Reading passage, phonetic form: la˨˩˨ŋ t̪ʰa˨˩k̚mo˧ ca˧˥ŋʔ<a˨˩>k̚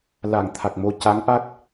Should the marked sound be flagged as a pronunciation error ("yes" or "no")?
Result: yes